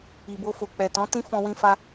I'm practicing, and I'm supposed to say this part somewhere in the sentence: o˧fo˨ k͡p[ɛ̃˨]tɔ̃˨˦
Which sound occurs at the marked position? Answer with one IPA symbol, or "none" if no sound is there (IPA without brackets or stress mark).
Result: ɛ˨